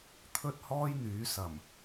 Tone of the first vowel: high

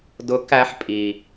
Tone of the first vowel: rising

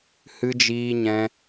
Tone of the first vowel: high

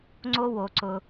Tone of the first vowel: high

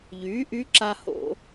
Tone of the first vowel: rising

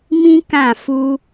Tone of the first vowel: high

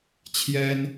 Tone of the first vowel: high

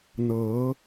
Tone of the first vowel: rising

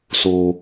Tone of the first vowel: high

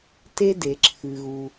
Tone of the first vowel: high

